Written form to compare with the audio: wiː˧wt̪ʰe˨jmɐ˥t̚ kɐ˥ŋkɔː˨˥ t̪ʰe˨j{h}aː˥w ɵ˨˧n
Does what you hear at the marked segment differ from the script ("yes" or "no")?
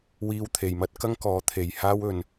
no